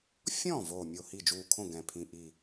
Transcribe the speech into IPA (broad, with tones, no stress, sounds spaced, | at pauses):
fʲ ɔ̃˥˩ v oː˧˩ mʲ o˧˩ h i˥˩ d͡ʒ uː˧˩ kʰ õ˥˩ ɡ ɛ̃˧˩ pʰ ĩ˧˩ ʔ i˧˩